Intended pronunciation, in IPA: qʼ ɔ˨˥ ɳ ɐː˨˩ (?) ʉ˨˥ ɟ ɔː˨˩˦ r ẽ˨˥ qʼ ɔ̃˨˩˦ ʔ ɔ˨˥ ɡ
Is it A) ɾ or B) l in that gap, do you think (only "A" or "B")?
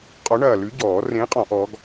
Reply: B